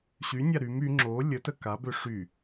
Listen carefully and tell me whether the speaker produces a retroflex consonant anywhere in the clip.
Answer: yes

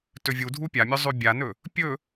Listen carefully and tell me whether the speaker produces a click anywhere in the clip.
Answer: no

